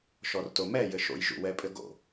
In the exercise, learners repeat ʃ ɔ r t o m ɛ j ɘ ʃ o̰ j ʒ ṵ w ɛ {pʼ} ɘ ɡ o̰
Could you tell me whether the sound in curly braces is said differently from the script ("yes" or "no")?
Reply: no